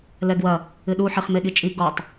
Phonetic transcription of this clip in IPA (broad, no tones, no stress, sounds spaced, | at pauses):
l ɛ ɡ w ɐ | ɨ ɗ u ħ i χ m e ɠ i t͡ʃʼ i ɡ ɔ tˤ